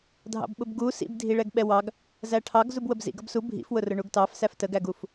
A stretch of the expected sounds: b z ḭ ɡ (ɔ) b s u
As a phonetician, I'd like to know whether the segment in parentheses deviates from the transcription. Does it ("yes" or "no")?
yes